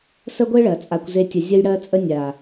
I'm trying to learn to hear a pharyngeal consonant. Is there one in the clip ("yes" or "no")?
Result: no